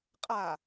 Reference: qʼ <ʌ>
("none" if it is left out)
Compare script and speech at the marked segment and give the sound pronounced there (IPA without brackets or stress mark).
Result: a